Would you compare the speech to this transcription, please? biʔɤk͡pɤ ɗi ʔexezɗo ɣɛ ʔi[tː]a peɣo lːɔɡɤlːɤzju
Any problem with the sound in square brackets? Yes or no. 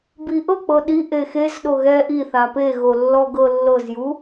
yes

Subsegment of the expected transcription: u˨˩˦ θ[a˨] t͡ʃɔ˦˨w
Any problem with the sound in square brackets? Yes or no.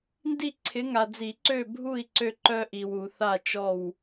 yes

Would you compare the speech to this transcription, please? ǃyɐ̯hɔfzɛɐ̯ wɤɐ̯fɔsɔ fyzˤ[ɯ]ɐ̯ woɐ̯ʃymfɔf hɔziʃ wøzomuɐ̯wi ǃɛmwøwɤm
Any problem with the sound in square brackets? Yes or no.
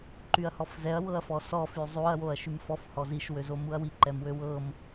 yes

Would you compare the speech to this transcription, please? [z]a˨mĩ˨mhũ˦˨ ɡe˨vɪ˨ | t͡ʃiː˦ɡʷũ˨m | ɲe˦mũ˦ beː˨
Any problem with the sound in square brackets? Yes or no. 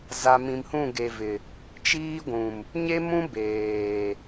no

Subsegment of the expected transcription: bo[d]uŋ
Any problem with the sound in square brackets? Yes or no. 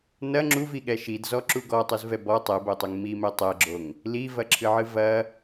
yes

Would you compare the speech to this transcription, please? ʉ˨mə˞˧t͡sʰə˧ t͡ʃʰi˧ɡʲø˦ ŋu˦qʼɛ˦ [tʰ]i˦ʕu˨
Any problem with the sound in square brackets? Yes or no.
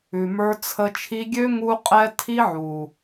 no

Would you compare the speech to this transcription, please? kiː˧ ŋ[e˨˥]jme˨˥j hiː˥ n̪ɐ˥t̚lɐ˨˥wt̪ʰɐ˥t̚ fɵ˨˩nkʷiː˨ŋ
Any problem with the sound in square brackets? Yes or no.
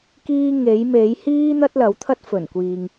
no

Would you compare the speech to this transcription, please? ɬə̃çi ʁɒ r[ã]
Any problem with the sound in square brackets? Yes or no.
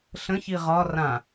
no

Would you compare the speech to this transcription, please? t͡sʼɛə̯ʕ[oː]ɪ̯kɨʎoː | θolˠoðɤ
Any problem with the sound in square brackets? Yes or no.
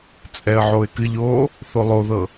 yes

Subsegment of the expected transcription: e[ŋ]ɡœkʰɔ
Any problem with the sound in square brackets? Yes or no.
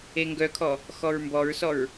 no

